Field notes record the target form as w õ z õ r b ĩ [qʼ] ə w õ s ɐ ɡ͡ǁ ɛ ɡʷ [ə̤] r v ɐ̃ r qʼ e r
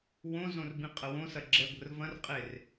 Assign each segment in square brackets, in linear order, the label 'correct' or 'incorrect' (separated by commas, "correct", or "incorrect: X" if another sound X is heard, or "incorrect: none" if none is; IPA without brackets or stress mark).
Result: correct, correct